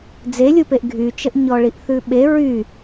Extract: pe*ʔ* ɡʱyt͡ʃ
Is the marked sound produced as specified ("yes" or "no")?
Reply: yes